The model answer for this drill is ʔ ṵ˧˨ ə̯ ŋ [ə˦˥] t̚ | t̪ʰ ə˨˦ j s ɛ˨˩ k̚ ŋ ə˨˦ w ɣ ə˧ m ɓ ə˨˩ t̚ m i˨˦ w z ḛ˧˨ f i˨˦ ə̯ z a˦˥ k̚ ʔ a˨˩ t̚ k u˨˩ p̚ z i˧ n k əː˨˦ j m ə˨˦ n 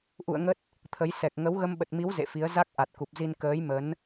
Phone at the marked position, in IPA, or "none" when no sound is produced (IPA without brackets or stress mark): ə˦˥